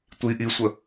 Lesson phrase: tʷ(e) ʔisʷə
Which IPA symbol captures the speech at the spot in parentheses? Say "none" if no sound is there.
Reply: i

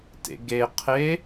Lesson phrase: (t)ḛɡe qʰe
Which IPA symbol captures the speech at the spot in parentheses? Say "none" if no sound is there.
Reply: t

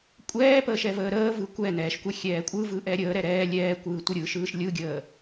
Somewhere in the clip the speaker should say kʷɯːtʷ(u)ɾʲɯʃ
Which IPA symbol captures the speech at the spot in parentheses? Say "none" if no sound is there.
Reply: ɯ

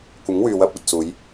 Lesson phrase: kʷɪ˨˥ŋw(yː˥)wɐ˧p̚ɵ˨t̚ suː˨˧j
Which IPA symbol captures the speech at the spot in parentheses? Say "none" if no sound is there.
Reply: yː˨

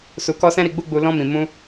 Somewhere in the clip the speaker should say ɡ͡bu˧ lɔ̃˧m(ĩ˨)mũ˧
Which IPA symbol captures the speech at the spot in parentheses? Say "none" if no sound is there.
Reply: ĩ˨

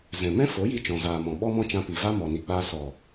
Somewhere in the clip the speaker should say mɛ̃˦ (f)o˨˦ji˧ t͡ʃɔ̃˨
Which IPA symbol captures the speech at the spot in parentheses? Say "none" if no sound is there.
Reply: f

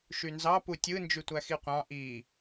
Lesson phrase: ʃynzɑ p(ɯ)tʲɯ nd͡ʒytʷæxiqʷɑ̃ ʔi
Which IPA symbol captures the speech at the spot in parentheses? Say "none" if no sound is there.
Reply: u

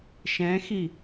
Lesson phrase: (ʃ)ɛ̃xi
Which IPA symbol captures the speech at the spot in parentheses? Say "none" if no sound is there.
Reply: ʃ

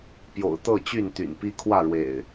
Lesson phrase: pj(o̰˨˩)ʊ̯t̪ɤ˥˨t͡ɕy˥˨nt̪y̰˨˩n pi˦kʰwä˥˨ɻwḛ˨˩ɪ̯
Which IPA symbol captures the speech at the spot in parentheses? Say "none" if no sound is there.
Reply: o̰˨˩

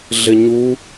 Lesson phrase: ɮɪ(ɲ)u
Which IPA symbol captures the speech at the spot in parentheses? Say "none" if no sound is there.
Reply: ɲ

